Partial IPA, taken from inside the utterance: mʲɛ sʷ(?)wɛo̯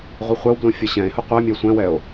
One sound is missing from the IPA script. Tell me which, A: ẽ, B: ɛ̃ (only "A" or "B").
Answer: B